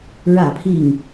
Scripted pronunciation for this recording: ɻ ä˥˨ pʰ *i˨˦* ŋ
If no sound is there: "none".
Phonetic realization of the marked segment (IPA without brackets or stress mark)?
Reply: i˥˨